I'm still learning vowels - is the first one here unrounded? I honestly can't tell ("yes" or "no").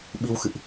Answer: yes